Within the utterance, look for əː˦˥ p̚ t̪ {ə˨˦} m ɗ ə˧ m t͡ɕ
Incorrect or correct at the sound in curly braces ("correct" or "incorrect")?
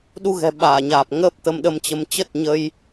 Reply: incorrect